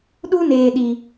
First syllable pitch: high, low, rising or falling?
high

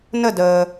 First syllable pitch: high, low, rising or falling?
falling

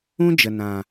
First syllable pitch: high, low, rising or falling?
high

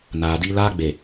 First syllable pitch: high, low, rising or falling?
low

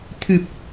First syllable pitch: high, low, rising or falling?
low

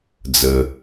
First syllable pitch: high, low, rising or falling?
low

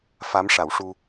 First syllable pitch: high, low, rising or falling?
rising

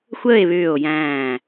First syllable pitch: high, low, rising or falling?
falling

